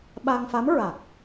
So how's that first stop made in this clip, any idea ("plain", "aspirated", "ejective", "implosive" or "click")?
implosive